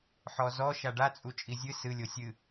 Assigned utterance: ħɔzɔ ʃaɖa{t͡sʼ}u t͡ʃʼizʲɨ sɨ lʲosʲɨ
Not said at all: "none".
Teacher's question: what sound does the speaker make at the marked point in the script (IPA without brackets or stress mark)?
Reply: t͡sʼ